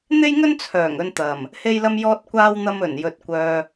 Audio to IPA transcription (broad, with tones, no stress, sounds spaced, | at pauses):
n̪ e˥ j ŋ ɵ˥ n t͡sʰ œː˨˩ ŋ ɵ˧ n t̪ ɐ˨˩ m | h e˥ j l ɐ˥ m j ɔː˥ t̚ kʷ aː˥ w n̪ ɐ˧ m ɵ˨˩ n j ɵ˨ t̚ kʷ œː˧